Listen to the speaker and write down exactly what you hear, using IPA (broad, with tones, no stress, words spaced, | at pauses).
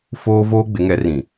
foː˦ voː˦ɡ͡bɪ˨˦ŋɛ˨˦r ĩ˨